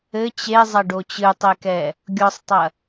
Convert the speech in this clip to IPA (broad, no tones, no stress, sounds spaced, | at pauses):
ɘ t͡ɕ e zˤ ɐ ɖ o t͡ɕ ɨ tˤ e k ɛ | ɡʲ ɔ sˤ tˤ ɐ